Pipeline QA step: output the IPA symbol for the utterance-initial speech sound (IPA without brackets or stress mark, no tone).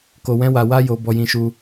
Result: k